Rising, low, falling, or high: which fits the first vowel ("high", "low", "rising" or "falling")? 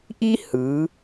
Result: high